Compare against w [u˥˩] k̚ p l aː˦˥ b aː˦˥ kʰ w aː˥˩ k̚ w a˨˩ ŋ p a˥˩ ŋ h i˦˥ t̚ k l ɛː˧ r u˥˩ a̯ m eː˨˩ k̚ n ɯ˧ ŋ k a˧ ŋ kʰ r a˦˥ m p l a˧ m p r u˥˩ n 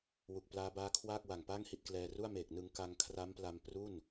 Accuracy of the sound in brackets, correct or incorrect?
incorrect